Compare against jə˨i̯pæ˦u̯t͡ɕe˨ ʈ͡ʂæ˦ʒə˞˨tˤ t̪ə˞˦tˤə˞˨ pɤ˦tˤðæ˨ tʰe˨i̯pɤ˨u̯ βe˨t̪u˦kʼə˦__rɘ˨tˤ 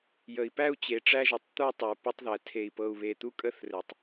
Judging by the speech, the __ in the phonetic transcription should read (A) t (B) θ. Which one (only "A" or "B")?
B